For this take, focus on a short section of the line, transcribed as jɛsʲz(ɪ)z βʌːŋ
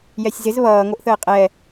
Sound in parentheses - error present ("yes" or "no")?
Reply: no